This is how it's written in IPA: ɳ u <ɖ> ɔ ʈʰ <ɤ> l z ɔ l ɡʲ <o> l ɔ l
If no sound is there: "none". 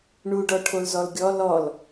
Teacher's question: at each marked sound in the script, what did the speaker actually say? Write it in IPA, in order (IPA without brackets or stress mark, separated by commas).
ɖ, o, ɔ